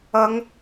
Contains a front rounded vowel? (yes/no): no